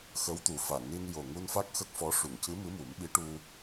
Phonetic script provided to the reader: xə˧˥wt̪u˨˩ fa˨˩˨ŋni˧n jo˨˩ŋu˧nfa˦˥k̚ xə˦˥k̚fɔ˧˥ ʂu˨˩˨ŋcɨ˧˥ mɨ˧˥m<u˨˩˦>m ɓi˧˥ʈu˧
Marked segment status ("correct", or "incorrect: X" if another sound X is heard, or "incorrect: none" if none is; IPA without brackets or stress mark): correct